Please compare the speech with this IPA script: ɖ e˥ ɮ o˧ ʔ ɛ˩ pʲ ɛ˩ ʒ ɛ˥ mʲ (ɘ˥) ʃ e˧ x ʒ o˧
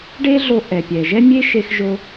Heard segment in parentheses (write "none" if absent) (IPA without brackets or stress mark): e˥